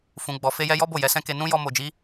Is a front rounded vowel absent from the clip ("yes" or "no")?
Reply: yes